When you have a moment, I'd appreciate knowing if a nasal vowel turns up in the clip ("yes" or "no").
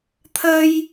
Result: no